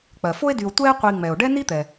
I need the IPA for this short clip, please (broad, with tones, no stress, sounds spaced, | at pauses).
k͡p ɜ˩ f o˥ e̯ d y˨ o̯ tʷ ɛ˦ e̯ qʷ i˨ ŋ͡m ɛ˩ o̯ ɖ ɛ˥ n i˥ t̪ ɛ˩